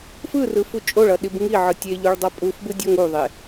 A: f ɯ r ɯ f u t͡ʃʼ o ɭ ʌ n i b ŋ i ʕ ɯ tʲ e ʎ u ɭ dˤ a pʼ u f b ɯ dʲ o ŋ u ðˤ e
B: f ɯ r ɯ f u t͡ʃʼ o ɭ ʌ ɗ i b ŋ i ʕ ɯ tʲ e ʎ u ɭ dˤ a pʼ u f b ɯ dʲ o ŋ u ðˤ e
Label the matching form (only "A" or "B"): B